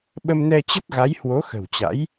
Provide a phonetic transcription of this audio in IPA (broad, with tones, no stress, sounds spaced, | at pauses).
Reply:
ɓ ə˧ m n ɛ˧ t͡ɕ ə˦˥ t̚ ɣ a˨˦ j h w o˨˦ x ə̤˨˩ w t͡ɕ a̰˧˥ j